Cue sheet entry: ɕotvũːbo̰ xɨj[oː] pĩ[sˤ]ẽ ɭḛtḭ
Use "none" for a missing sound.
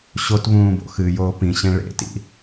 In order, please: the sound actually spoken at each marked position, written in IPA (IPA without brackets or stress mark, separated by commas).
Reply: oː, ɕ